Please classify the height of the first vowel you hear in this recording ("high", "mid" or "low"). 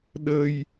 mid